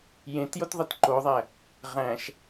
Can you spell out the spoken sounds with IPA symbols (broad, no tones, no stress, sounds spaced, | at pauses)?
j ẽ t j o t ðˤ e t ǃ o ðˤ æ | ʁ æ̃ ʃ